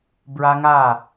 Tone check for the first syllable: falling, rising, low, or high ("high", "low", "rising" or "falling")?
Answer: high